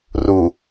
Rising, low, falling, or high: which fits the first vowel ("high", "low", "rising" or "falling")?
low